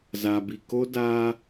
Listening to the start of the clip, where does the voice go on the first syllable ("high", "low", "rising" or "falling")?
low